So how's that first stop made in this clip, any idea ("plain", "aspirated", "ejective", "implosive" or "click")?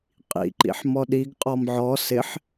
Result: ejective